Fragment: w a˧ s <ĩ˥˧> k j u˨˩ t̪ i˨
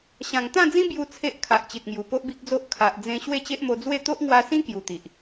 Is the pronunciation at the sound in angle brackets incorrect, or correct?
incorrect